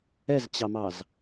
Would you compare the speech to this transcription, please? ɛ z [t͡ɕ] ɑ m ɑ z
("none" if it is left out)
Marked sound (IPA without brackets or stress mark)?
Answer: t͡ɕ